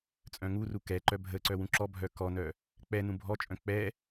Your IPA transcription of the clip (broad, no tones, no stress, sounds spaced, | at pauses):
t͡sʼ œ̃ ŋ u r u k ɛ ǃ œ bʱ ə ǀ œ w ũ ǁ ɔ bʱ œ k ɔ n œ | k͡p ɛ n ũ bʱ ɔ t͡ʃʼ œ̃ k͡p ɛ